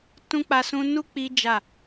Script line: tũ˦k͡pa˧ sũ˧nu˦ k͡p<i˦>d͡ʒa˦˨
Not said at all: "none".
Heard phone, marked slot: i˦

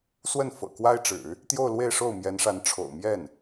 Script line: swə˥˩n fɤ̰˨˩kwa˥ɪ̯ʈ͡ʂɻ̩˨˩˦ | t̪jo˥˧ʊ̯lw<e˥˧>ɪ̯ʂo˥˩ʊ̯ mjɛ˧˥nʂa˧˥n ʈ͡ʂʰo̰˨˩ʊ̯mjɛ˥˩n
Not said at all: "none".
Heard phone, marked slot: e˥˧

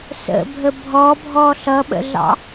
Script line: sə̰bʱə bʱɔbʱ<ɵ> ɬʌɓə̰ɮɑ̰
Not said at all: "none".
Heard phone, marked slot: ɔ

